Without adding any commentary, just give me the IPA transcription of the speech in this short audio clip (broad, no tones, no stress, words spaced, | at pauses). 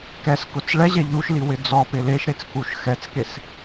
kɛskʊt͡s ɭɛʑɛ ʎuʃli wɪd͡zɔpɪ leʃɾet͡s kuʃxɛt͡skes